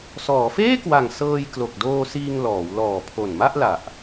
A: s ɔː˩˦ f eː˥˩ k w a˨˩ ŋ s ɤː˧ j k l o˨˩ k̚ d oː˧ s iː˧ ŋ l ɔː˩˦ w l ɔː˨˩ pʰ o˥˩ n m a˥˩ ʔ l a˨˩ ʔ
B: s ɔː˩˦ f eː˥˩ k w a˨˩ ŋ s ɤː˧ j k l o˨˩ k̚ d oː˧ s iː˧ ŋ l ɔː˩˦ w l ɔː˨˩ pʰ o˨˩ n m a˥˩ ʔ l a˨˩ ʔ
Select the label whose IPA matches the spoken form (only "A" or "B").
B